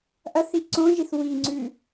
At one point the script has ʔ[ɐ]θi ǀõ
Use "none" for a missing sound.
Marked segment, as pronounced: ɐ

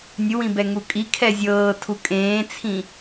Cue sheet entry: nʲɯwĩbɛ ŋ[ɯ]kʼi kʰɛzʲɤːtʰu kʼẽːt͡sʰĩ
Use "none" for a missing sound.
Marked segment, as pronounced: u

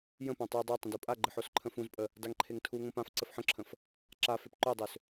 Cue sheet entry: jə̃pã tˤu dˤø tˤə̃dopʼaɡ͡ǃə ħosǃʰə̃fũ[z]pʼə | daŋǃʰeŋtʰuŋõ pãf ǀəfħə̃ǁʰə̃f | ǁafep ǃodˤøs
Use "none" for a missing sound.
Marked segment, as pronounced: z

